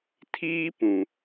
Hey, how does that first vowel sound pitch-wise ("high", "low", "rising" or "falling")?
high